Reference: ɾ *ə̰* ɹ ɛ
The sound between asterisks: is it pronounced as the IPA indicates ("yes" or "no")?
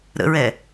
yes